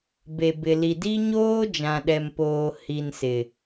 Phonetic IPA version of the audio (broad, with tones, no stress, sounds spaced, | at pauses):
b e˨ b ɪ˨ l i˨ d i˦ ɲ oː˦ d͡ʒ ã˨ ɗ ɛ˨ m p oː˨ h i˨ n s ɪ˨